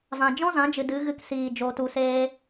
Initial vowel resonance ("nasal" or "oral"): nasal